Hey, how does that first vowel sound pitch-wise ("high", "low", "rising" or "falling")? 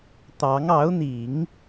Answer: rising